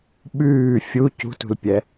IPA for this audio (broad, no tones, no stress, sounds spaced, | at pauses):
ɓ ʉː fʲ u c ṳ t ṳ l pʲ ɛ